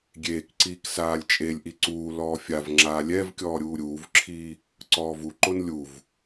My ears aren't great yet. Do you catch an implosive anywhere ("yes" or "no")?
no